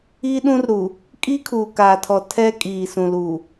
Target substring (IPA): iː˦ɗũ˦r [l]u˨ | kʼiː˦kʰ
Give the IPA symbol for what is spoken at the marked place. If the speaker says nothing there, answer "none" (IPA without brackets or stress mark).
ɾ